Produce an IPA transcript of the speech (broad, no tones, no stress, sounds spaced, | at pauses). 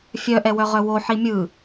fʲ œ ʔ ɛ w œ ʁ œ w o ħ i mʲ ɯ